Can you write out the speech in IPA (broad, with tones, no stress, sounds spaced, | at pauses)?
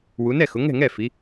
w u˩˧ n ɛ˥˩ x ʊ˩˧ ŋ ɛ̤˥˩ ŋ ɛ˥˩ f i˩˧